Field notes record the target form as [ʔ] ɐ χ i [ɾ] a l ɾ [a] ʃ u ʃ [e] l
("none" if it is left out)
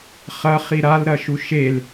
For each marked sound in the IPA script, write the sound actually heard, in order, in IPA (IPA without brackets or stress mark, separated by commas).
χ, ɾ, ɐ, e